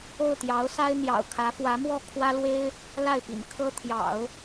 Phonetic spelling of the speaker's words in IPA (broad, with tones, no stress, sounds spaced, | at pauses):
o˥˩ ʊ̯ t̪ j ɑ˧˥ ʊ̯ s a˥ ɪ̯ n̪ j ɑ̰˨˩ ʊ̯ kʰ ä˧˥ f w ä˧˥ m w ɔ˥˩ kʰ w ä˥ l w e˥ ɪ̯ | l a˥˩ ɪ̯ p ḭ˨˩ n kʰ ɤ˥ t̪ʰ j ɑ̰˨˩˦ ʊ̯